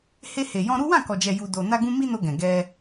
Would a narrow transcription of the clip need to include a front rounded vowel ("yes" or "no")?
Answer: no